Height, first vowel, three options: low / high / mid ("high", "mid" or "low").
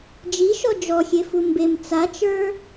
high